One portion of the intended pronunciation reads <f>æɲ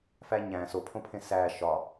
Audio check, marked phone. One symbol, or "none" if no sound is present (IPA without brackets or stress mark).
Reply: f